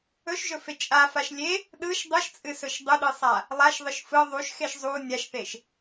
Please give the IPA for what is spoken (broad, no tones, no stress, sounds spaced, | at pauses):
ɵ ʃ ʒ ɵ f e t͡ʃʼ a f a ʃ lʲ e | ɗ ɯ ʃ dˤ ɯ ʃ t͡sʼ ɨ s ɵ ʃ dˤ u ɗ ɯ sˤ a | lˠ a ʃ ðˤ ɯ ʃ f ɯ ðˤ u ʃ x e ʃ zˤ u nʲ a ʃ θ e ʃ